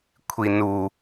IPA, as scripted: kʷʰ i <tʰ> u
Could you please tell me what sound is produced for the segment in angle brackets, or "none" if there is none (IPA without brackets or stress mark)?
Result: n